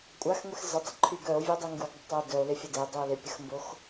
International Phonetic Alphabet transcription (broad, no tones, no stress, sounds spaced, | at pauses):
kʷʼ a x ŋʷ e x z ə tˤ ɪ ǃʰ y ɡ œ o̯ vʲ u dˤ y ŋ ɡ u ɡ dˤ ɪ tˤ ɪ o̯ d œ o̯ l ɪ fʲ ə d e dˤ y o̯ l ɪ pʲ ə x m b o x